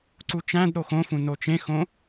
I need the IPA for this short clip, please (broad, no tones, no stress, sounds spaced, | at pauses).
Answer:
ǀ u t͡ʃ æ̃ d ɾ o x õ f ũ n o t͡ʃ ẽ x õ